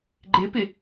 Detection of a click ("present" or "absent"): present